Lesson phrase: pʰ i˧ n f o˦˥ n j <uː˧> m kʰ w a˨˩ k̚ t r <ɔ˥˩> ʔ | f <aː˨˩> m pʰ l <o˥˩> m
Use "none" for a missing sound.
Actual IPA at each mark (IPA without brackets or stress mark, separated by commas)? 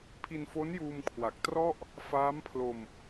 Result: uː˧, ɔ˥˩, aː˦˥, o˧